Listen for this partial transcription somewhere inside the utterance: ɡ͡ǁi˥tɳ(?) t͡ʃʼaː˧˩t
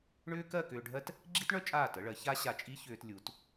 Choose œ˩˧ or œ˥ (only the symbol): œ˥